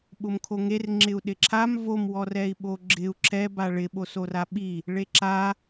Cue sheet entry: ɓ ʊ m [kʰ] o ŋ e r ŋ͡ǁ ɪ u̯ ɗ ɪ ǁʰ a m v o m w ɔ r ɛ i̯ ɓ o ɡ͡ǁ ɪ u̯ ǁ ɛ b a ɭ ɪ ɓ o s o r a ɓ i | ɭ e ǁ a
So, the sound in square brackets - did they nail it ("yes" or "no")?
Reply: yes